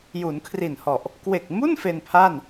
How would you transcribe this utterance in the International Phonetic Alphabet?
ju˩˦nkʰri˨˩nhɔ˨˩ʔ | kwe˨˩k̚mu˥˩n fe˧npʰa˥˩n

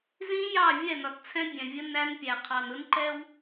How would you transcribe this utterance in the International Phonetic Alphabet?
zĩ˦jɑ˦˨ vʲɛ˦˨nɒ˨tt͡sʰɛ̃˦ bʲɛ̃˨vʲə˦ næ˦npʲæ˨qʰɑ˨n ʊ˦nǃɛ˦w

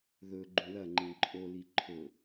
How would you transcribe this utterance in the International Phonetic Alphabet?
ðɵ ɡ͡ǃũlɐŋ͡ǃĩ ǃʼoli ǃʰɵ

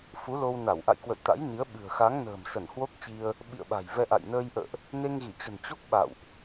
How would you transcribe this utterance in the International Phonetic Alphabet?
fu˨˦lo˧w na˧˩wʔa̰˧˨j kwə̰˧˨jt̪a̰˧˥jni˨˦ə̯ ɓɨ̤˨˩ə̯xa˨˦ŋ nə̤ː˨˩msə˧˩n hwo˦˥k̚t͡ɕi˧ə̯ | ɓḭ˧˨ə̯ɓa̤˨˩jvɛ˧ʔa̰˧˨j nəː˧jʔə̰ː˧˨ʔ | ne˧ŋɣi˧˩t͡ɕə̤˨˩n t͡ɕo˦˥k̚ ɓa̰˧˨wʔ

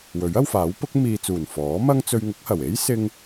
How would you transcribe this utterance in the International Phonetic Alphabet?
wɵ˨˥ɥ ɐ˧wfaː˨˥w pʊ˨˥k̚ miː˨t͡suː˨˩n fɔː˨˥mɐ˥ŋ t͡sɵ˧ɥŋʊ˨˥k̚hɐ˨˩w e˥jsɪ˧ŋ

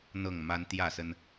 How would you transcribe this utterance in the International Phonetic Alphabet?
n̪ɤ˥˨ŋma˦n t̪jä˥˨sə˦n

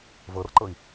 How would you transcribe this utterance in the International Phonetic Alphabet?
vɤrǃɤi̯

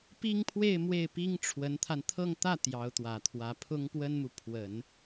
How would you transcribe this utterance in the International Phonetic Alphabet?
pi˥ŋpʰwe˥˧ɪ̯ mwe˥˩ɪ̯pi˥ŋʈ͡ʂʰwə˧˥nt̪ʰa˧n t̪ʰɤ˥˧ŋt̪ä˥˩ t̪jɑ˧˥ʊ̯t̪wä˨˩t̪ʰwä˧˥ pʰʊ˥ŋpwə˥nmu˨ pʰwə˨˩˦n

